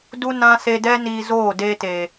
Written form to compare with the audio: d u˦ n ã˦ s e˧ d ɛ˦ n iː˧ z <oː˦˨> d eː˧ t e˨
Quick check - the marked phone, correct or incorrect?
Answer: correct